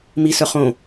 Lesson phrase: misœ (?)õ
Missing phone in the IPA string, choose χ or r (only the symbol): χ